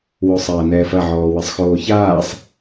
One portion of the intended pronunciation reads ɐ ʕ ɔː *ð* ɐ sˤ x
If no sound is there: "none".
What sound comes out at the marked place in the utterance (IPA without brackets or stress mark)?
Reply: w